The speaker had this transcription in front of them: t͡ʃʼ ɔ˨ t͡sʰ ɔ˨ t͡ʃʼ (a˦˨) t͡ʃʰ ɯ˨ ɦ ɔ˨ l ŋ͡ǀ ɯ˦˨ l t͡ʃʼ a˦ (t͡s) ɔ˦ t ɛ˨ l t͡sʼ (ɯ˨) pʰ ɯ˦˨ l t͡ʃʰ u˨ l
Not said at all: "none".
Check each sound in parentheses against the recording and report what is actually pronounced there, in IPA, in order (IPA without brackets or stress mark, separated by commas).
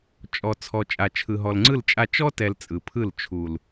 a˨, t͡ʃ, ɯ˨